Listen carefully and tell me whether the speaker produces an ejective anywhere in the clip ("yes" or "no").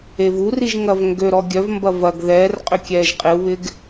yes